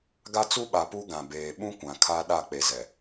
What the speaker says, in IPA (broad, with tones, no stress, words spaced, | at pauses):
ɡa˦t͡su˦ɓa˨ pu˦ɡã˨beː˨ ɓũ˦kʷã˨ kʰa˦ ɗa˦˨ k͡pe˨zɛ˨